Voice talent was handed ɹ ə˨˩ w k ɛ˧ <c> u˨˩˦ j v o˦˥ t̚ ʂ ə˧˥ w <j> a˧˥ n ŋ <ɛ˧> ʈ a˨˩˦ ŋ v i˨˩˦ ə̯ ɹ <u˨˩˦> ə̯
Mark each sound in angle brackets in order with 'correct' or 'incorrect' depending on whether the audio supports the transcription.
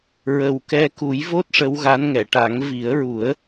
incorrect, incorrect, incorrect, correct

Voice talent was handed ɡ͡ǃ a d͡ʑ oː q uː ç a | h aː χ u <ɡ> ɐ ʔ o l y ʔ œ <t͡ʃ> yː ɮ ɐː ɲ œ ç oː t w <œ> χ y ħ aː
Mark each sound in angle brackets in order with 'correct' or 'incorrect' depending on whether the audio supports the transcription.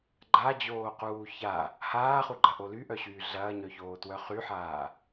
incorrect, incorrect, correct

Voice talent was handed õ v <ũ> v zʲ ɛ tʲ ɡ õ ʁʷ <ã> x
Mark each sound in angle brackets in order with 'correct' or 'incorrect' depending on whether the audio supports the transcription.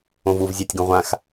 incorrect, correct

